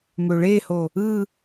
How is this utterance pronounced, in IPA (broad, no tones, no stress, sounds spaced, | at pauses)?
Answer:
m ø ɭ e h o | ɯ